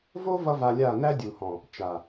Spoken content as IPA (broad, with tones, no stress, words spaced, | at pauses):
vo˦ vʌ˦va˧lʲa˦˨ næ˦dʲu˨hɔ̃˨ | t͡ʃa˨